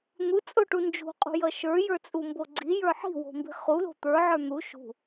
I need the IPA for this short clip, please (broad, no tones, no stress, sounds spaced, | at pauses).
n̪ u t͡sʼ o ʈ u n d͡ʒ ṳ qʼ ṳ j ʌ ʃ ə˞ j ə˞ t͡sʼ u m b o ɡ͡ǀ i j ə˞ ħ i̤ w o̤ m b i̤ χ u l o̤ t̪ ə˞ ʕ ə˞ n̪ u ʃ ṳ